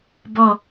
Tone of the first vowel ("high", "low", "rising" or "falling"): falling